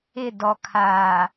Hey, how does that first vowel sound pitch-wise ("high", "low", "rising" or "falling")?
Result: falling